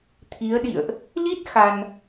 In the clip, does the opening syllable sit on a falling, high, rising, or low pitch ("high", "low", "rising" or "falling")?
rising